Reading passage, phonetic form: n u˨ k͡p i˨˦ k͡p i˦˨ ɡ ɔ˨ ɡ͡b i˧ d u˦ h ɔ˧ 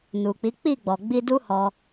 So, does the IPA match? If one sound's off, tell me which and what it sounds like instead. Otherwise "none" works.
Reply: ɡ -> ɡ͡b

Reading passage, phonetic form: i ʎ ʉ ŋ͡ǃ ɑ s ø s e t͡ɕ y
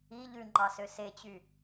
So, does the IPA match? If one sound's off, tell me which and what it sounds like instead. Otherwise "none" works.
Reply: none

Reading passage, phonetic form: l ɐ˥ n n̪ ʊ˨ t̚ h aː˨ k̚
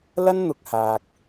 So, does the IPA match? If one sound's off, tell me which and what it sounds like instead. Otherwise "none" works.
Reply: t̚ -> k̚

